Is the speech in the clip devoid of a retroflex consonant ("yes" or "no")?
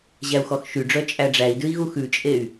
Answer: no